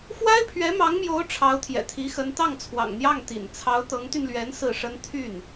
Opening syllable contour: high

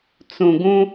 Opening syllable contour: low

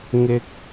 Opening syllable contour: high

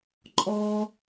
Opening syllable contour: high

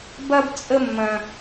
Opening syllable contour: high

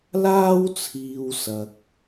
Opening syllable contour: high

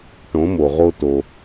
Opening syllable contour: rising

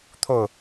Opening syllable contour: falling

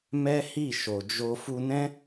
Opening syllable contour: high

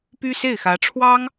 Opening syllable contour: high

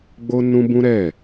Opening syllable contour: high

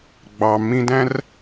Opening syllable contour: low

